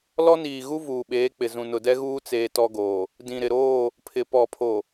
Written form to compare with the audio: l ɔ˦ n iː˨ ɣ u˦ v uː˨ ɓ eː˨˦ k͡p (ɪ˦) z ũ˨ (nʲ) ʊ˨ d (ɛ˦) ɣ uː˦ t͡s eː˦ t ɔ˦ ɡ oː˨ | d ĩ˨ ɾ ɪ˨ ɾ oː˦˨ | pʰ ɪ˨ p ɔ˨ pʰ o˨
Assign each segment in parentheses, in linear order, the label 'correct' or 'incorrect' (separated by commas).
incorrect, incorrect, correct